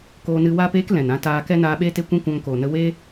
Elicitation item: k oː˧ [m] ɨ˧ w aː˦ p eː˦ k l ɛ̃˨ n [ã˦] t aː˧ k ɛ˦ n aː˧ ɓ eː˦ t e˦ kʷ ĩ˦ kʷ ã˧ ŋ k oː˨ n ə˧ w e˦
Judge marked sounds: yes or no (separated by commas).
no, yes